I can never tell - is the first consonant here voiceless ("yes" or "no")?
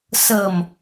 yes